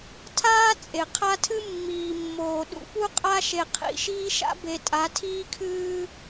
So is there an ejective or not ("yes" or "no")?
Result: yes